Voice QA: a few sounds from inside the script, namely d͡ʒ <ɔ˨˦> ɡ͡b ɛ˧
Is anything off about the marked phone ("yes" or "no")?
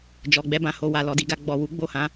yes